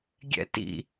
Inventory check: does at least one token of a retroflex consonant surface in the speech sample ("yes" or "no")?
no